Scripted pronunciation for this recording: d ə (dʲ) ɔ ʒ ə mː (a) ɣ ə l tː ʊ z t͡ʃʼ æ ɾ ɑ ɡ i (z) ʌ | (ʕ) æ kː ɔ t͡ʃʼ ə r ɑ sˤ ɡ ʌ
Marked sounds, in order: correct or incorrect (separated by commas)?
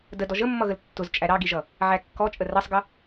incorrect, incorrect, incorrect, correct